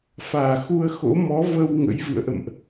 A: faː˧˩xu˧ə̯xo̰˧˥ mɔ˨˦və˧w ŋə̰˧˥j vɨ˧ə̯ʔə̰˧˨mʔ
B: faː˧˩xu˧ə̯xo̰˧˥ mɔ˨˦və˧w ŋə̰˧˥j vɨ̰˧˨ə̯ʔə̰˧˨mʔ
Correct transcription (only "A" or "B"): B